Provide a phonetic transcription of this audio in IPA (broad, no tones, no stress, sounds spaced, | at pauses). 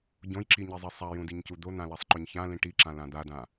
ɟ õ j ǁ i ɲ i zˤ i sˤ a j ũ d i ɲ c u d̪ o n̪ ã l a sˤ ǃ ɵ ɲ ç ã l ĩ ʈ i ǁ ã l ã d̪ a d ã